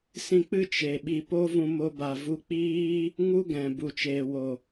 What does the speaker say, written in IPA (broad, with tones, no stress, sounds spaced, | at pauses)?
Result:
s ĩ˧ k͡p ɨ˦ t͡ʃ e˨ ɓ i˧ p o˦ v ũ˧ m o˦ b a˧ v u˦ k͡p iː˦ | ŋ u˦ ɡ ɛ̃˨ b u˨ t͡ʃ eː˨ w o˨